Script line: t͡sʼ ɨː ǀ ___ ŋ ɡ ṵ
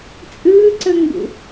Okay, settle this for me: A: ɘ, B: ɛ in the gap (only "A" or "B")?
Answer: A